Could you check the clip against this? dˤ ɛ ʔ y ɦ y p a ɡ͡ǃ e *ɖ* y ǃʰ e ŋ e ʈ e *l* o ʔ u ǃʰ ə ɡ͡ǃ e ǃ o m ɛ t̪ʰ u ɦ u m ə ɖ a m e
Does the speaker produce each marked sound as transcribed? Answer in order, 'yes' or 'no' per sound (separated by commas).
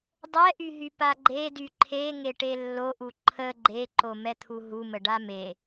no, no